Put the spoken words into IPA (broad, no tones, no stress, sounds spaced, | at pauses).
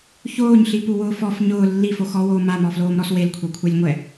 ç oː ɲ ɬ i p u w ʊː f ɔ f ɲ ʊː lː i f o x ɔ w oː m a m ɔ f l oː m ɾ ɔ s w e l kʷʰ e kʷʰ ɛ lʲ ŋʷ ɛ